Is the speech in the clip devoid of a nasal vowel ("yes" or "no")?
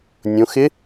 no